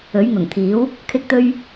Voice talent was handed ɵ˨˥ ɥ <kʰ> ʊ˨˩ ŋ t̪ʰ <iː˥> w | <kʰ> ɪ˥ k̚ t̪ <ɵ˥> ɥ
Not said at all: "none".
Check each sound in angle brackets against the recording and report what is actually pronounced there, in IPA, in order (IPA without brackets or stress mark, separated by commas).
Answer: ŋ, iː˨˥, kʰ, ɵ˥